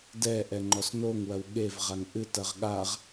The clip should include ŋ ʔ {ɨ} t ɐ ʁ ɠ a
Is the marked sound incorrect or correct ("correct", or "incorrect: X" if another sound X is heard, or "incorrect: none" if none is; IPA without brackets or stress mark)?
correct